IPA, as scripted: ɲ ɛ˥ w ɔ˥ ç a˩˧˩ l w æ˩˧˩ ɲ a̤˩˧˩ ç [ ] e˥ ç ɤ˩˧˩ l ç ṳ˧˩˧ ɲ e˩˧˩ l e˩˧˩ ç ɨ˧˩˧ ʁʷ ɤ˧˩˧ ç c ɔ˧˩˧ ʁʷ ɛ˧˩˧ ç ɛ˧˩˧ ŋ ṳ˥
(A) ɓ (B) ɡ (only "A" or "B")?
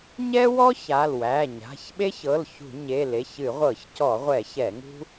A